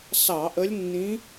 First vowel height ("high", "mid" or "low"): low